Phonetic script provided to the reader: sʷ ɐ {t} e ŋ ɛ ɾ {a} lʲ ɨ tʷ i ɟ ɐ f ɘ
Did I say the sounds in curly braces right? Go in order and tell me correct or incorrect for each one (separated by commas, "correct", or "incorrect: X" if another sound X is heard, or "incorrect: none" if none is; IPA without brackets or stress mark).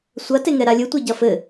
correct, correct